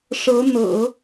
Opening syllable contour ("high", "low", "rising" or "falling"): rising